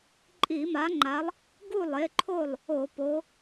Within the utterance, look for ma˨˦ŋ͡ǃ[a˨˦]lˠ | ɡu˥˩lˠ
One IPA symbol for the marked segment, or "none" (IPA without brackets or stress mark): a˨˦